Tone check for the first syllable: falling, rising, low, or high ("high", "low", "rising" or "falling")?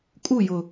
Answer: falling